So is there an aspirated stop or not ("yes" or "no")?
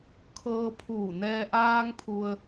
yes